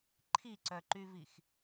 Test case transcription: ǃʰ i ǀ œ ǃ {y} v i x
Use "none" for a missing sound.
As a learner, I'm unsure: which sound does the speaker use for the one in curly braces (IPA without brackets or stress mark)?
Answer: y